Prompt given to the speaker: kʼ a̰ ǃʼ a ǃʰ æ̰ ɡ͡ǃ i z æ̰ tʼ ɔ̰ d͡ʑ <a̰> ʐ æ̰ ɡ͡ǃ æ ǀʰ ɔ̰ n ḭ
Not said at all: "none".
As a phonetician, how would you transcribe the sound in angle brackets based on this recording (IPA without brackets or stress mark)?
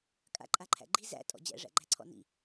æ̰